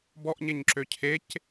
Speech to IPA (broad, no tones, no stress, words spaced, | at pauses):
bɔʔɲeɲǁø cʰec